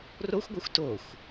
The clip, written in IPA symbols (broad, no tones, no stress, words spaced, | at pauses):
roxʷɡʷʌxʷ toxʷ